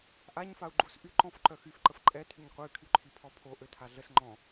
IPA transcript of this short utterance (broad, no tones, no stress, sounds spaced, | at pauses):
ʔ a ɲ f a u̯ ɡ͡ǃ u s ʔ y ǃ ɔ̃ f ǃ œ x y f ǃ ə f ǃʼ ɛ tʰ y ɲ qʷ e y̯ kʰ y ǃʰ i pʰ ɔ pʰ o ʔ ø tʰ a ɮ ə s ŋ͡ǃ ɔ̃